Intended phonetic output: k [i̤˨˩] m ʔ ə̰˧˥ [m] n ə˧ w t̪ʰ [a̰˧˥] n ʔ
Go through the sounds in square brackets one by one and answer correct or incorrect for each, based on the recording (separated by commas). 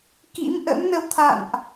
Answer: incorrect, correct, incorrect